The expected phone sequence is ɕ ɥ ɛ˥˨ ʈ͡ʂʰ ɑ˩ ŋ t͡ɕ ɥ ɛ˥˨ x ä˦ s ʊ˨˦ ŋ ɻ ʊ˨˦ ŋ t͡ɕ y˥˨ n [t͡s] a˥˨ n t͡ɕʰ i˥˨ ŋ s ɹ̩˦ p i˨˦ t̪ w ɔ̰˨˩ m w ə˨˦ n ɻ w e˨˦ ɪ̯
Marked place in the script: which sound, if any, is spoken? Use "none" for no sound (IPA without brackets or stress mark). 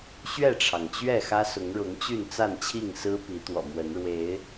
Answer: t͡s